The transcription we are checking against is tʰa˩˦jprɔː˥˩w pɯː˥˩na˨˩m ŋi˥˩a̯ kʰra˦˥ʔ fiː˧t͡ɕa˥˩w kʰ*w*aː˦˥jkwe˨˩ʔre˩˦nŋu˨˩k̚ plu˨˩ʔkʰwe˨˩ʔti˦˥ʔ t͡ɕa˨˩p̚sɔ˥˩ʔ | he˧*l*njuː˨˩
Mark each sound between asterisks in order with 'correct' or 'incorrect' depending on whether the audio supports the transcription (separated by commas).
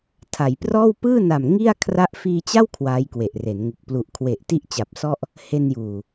correct, incorrect